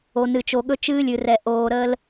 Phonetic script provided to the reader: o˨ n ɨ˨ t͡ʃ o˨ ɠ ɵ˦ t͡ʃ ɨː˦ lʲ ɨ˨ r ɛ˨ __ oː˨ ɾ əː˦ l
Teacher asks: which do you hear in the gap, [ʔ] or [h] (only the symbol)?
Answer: ʔ